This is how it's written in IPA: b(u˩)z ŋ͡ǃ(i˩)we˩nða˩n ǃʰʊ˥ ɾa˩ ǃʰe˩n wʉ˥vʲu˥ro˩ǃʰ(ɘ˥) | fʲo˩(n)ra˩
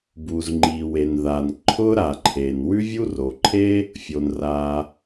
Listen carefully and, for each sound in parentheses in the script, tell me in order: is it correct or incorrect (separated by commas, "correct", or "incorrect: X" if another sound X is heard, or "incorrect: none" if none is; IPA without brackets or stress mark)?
correct, correct, incorrect: e˥, correct